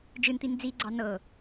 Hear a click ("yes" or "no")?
yes